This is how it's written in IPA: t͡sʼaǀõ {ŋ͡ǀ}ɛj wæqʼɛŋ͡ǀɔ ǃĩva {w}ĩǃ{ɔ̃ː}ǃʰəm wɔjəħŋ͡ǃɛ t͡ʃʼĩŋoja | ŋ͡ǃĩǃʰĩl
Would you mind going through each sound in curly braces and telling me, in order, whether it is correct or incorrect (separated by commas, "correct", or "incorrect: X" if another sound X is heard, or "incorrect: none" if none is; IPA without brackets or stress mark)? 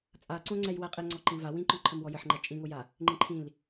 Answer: correct, correct, incorrect: ɔ̃